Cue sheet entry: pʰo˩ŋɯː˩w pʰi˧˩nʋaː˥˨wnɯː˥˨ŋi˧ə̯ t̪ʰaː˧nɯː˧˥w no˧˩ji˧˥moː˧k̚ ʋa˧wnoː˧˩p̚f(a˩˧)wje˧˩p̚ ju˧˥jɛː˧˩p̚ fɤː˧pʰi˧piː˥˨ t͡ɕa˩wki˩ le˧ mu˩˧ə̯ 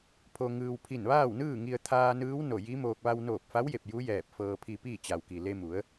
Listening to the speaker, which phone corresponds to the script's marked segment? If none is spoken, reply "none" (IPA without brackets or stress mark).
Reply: a˧˥